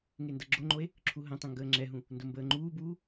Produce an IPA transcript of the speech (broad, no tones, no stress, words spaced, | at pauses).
ŋendʌɡ͡ǁoŋ͡ǃoe̯ | ǁʰuɦə̃tˤə̃ ŋɡəːŋ͡ǁɛɦũ | ndombəːŋ͡ǃuːbuː